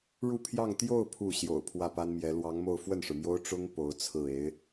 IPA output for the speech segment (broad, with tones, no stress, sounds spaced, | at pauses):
ɻ u˥˧ pʰ j ɑ˥˧ ŋ t̪ j o˥˧ ʊ̯ pʰ u˥˩ ɕ j o̰˨˩ ʊ̯ pʰ w ä˥˩ p a˥ n m j ɛ˧˥ l w ɑ˧˥ ŋ m o˥˧ ʊ̯ f w ə˥˩ n ʂ ɻ̩˩ m j o˥ ʊ̯ ʈ͡ʂ ʊ˥ ŋ p o˧˥ ʊ̯ t͡sʰ ɹ̩˥˩ e˧˥ ɪ̯